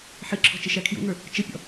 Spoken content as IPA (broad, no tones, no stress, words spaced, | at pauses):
ħɪǁʰɔ̤ t͡ʃɪʃækʰjṵŋə˞ | t͡ʃəpʲɔ̰